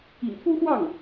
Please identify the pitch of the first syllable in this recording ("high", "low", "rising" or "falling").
low